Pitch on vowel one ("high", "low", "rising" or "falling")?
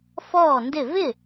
falling